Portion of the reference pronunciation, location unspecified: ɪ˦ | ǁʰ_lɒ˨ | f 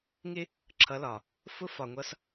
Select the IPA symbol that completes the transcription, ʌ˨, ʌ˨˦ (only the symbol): ʌ˨˦